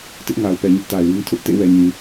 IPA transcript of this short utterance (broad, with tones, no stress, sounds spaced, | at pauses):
t ɪ˦ ʔ ŋ a˨ ʊ̯ p ɛ˨ ɲ ɪ˦ ʔ t a˨ ɪ̯ w ĩ˦ tʰ ʊ˦ ʔ t ḛ˦˨ w ɛ˨ ɲ ĩ˨